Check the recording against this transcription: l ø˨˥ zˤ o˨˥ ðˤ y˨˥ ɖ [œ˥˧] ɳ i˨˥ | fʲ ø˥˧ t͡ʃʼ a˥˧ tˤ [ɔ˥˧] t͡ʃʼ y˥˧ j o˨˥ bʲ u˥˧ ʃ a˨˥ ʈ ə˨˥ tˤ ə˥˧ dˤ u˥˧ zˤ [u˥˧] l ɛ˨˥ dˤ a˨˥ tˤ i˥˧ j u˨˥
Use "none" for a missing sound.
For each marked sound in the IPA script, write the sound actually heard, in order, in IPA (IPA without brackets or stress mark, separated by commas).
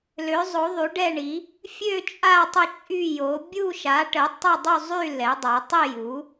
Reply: ɛ˥˧, ə˥˧, y˥˧